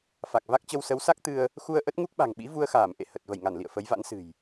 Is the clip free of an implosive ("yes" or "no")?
no